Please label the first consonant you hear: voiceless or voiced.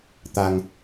voiceless